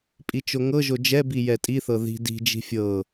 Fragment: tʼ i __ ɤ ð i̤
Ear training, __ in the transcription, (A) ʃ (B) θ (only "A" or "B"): B